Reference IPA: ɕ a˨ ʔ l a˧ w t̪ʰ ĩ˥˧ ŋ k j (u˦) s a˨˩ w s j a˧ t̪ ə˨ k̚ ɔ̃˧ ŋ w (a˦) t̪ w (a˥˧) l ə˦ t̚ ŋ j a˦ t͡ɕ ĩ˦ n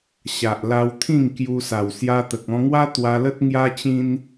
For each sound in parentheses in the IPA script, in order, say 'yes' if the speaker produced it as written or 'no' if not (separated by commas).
no, yes, no